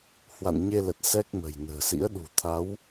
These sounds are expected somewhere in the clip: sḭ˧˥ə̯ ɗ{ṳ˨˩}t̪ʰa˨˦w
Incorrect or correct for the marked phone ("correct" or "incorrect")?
correct